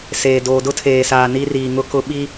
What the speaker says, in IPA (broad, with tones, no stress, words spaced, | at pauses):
seː˨ doː˨dʊ˦tʰeː˨saː˨ ni˦riː˨ŋʊ˦kʊ˦ ɓi˦